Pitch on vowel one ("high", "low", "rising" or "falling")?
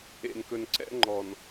low